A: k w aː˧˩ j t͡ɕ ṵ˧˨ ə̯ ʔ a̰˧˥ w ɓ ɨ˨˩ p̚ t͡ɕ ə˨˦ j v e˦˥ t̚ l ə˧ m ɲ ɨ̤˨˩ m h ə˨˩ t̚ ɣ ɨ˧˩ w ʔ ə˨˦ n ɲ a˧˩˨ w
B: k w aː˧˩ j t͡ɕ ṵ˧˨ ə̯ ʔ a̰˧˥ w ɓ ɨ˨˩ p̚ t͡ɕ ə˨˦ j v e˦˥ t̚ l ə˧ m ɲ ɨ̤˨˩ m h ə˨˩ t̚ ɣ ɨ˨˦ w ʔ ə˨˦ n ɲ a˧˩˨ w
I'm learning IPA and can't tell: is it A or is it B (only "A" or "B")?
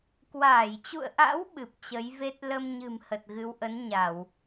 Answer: B